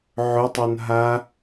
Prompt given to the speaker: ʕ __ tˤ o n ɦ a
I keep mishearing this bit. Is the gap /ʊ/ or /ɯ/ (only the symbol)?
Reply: ʊ